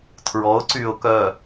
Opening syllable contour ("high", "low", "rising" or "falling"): rising